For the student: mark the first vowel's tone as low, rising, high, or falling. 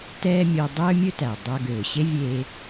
high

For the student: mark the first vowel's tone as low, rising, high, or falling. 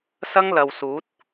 high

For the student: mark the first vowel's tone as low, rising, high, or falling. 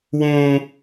high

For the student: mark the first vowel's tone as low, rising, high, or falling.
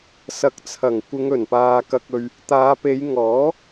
rising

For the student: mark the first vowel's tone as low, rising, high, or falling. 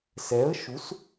rising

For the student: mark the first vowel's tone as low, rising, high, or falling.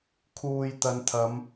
low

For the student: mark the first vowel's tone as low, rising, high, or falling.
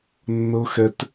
high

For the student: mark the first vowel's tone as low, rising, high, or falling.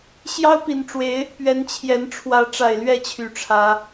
high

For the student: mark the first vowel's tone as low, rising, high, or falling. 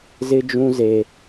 high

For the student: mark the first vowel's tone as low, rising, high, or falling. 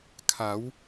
rising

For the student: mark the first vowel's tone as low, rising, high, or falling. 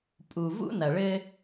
low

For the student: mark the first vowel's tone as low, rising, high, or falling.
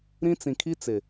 high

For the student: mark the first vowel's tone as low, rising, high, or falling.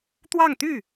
falling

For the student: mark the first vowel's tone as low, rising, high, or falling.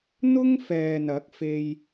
high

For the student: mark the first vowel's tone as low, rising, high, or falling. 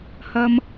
high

